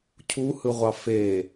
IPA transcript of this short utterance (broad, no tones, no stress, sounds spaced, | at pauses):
cʰ u h ɯ ʁʷ ɑ f e